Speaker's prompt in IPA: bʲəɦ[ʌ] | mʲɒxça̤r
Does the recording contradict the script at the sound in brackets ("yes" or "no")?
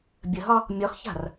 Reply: yes